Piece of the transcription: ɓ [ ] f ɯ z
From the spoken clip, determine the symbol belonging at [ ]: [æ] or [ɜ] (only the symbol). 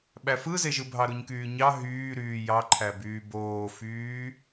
æ